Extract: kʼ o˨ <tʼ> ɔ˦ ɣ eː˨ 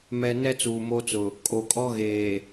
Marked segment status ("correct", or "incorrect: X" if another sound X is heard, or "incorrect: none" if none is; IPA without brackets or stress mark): incorrect: kʼ